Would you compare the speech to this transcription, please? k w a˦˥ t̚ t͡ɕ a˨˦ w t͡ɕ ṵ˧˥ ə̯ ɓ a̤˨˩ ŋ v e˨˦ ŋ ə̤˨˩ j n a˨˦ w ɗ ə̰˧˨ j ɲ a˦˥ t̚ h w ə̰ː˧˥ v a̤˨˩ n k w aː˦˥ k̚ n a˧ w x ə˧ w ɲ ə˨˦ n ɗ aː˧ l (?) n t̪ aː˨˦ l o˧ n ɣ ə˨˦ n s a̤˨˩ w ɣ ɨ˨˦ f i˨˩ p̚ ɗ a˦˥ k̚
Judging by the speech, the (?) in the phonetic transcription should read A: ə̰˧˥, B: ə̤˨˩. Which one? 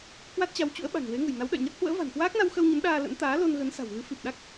A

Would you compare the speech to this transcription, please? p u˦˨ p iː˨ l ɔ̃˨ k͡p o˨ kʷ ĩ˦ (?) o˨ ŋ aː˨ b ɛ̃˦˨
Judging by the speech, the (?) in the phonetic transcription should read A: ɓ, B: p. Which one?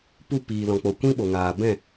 A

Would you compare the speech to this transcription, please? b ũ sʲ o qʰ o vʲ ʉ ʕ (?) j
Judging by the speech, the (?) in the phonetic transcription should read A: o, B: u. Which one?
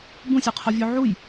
B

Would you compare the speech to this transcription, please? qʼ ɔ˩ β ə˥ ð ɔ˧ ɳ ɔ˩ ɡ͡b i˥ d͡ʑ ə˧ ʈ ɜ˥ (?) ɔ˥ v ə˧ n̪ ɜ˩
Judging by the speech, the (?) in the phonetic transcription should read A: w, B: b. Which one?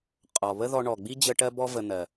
B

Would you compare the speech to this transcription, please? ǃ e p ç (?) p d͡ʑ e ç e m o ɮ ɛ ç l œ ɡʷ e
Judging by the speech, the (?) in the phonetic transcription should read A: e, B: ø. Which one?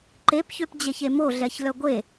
B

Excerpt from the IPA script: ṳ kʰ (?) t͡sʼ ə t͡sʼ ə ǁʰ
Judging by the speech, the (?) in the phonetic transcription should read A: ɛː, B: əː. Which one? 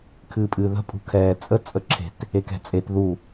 A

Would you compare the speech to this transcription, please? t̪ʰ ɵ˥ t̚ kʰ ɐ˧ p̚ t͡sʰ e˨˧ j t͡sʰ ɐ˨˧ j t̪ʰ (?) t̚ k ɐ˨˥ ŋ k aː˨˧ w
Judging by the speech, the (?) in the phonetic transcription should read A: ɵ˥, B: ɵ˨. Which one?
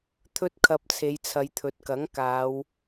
B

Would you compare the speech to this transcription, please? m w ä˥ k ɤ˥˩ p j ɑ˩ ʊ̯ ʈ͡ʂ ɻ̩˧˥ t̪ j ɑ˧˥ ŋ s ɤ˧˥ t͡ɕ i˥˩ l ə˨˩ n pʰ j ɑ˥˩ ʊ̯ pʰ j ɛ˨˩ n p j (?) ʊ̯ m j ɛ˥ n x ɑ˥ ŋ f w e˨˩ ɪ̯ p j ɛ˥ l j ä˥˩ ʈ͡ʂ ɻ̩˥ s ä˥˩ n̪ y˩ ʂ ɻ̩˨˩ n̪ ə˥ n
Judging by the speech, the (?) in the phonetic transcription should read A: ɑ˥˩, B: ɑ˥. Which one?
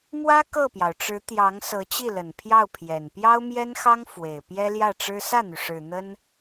B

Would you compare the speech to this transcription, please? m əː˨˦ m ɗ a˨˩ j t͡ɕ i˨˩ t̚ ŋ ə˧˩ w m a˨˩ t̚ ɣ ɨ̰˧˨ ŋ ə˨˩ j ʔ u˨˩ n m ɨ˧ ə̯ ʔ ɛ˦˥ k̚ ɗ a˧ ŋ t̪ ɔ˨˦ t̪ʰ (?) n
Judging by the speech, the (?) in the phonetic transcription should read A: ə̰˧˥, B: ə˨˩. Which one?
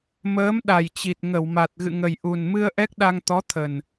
B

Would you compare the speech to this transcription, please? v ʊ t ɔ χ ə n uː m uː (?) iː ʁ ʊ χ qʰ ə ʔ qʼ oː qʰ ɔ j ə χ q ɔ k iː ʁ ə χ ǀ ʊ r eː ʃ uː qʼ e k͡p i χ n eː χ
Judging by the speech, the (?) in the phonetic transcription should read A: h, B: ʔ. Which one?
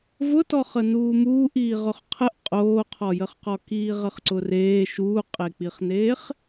B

